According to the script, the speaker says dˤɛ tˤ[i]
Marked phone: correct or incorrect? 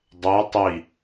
correct